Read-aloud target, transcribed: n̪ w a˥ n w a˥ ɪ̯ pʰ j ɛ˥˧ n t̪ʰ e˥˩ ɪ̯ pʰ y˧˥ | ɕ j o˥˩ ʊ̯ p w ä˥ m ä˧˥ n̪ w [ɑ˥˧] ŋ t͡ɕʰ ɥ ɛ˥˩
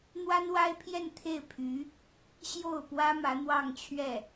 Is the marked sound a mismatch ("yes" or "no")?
no